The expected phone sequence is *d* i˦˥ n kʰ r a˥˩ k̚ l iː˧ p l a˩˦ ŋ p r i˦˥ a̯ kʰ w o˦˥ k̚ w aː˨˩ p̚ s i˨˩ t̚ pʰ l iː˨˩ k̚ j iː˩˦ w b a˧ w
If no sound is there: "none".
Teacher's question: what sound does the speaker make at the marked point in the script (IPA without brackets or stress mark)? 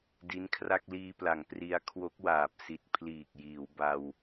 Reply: d